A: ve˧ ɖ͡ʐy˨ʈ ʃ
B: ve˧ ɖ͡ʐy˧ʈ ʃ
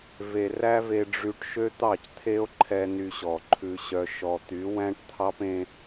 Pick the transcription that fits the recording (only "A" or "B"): B